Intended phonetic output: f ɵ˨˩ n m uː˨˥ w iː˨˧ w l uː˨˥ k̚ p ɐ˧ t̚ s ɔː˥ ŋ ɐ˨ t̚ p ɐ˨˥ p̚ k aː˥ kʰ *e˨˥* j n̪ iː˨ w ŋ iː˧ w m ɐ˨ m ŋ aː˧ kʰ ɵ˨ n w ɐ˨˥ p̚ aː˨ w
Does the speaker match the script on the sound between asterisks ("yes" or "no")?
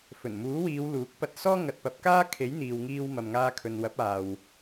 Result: yes